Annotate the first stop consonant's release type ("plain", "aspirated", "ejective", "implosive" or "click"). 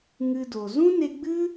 plain